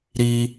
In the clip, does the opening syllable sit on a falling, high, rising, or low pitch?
high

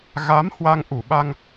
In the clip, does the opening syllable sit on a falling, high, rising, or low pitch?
rising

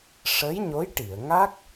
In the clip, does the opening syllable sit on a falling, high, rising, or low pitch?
rising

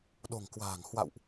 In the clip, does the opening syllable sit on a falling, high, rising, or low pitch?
low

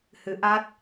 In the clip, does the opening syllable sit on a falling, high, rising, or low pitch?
rising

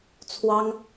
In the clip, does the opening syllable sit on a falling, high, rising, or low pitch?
high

